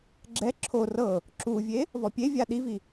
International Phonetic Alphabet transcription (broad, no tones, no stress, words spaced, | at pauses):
ɡ͡ǁɛ ǁʰo rɤ | ǁuvʲe | vɔpʲevʲa ɗivi